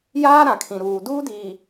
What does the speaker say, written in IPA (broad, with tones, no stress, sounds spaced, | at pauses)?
j aː˦ ɾ ã˨ kʰ ĩ˨ ɾ uː˨ d uː˦ d iː˨